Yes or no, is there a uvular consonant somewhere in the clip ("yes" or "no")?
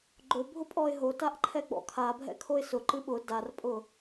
no